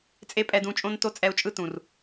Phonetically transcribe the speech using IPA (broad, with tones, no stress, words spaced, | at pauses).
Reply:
t͡sʼe˦pʼɛ˧dũ˧t͡ʃʼõ˦n to˦t͡sʼɛ˧u̯t͡ʃʼɯ˦ tũ˨r